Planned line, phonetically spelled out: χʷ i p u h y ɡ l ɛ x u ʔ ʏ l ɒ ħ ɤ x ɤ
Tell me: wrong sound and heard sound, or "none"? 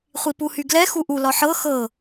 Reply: ʏ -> u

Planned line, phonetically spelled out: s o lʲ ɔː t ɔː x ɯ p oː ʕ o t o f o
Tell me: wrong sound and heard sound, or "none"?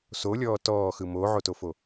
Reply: p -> m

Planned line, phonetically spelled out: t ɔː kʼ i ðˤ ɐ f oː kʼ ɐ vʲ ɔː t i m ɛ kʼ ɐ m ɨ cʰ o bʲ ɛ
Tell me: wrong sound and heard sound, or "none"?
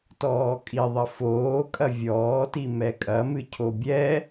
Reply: none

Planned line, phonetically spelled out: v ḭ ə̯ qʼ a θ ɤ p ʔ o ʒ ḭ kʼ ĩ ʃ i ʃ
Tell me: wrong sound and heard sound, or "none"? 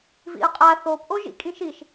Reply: ɤ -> o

